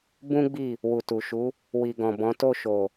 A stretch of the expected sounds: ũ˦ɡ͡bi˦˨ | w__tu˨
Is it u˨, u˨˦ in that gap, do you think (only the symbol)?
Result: u˨